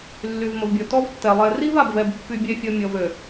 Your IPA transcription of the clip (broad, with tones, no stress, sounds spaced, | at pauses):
lː y˨ v m ə˨ v bʲ ɔ˨ t ɔ˦ v tː ɛ˨ lˠ ɛ˨ r i˦ v a˨ b v ɛ˨ b pː y˦ bʲ ɛ˦ fʲ ɔ˦ mʲ ɔ˦ v ø˨